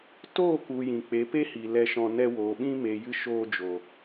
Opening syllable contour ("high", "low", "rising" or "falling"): falling